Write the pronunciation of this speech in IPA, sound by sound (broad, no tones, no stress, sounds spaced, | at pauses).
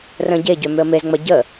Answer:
r ə̃ ɟ e ɟ ø m ʏ ə̯ m e z ŋ͡m ɐ ɟ ə